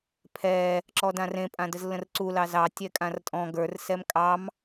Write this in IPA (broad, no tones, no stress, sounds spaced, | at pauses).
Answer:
pʰ ɛ | ǁ ɔ d ã r ẽ pʼ ã d ə z lː ə̃ r ǀ u l ɑ z ɑ tʲ ɛ kʼ ã r tʼ ɔ̃ ɡ ə˞ r s ɛ m kʼ ɑ m